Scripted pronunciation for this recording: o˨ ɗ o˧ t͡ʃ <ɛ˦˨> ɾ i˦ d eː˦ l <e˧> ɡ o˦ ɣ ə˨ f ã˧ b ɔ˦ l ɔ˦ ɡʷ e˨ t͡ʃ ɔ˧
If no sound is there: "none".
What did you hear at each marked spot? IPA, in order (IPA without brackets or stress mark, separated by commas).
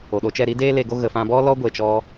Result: ɛ˦˨, e˧